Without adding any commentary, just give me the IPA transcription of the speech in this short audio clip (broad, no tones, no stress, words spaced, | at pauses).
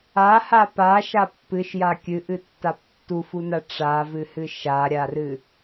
aha paʃa pːɨʃja kʲɨʔɨtːap tːufuna ʈ͡ʂavɨhɨ ʃaɾʲarɨ